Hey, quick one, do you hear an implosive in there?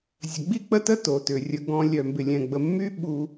yes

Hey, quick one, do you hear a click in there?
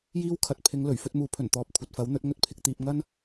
no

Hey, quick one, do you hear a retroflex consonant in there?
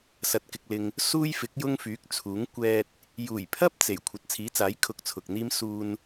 no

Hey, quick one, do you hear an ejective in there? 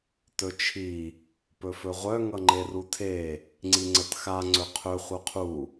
no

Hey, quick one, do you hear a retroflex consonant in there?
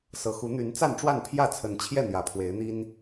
yes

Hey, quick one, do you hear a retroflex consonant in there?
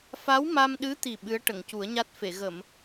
yes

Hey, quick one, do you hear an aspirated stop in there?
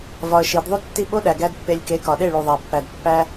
no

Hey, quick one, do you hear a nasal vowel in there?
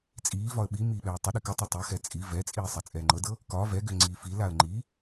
no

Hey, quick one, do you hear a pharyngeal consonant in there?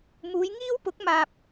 no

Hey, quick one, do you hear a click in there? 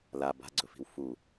yes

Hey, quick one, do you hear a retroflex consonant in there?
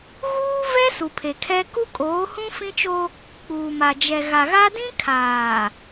no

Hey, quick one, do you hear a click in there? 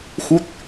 no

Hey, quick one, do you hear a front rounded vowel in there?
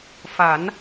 no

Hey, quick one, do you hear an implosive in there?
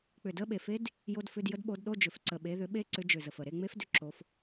yes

